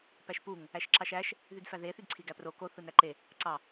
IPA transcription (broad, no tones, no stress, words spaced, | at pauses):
pæʃpuŋ | æʃǁɑʃæʃ | ðydfæðe θydǀʰiɡæpro ko θɯnæǃe | ǀɑ